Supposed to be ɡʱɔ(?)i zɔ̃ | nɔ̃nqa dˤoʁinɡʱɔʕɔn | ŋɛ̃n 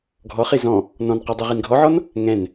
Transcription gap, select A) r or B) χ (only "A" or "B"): B